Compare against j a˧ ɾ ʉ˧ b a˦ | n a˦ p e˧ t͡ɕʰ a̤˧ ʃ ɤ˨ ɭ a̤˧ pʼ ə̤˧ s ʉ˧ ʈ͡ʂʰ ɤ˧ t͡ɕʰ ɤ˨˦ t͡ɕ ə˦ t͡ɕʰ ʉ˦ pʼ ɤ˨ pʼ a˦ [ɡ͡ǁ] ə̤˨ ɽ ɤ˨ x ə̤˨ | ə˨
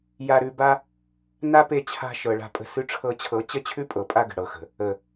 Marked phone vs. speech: incorrect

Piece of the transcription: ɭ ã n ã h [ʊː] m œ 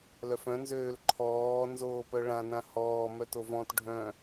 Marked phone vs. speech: incorrect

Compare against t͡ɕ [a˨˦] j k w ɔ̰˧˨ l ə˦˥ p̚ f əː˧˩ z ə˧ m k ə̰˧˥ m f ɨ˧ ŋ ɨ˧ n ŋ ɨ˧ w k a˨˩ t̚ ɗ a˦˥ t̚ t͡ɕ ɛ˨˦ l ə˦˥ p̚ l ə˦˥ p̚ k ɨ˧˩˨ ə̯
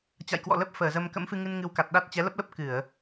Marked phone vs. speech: incorrect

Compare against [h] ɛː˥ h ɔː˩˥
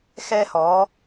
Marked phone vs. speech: incorrect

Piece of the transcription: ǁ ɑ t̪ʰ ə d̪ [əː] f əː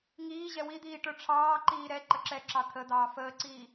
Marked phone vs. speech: incorrect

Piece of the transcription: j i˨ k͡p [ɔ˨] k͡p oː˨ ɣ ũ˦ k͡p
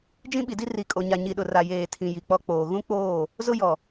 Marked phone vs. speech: incorrect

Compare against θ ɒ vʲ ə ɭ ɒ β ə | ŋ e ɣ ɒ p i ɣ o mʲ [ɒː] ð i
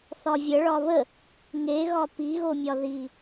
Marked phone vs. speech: incorrect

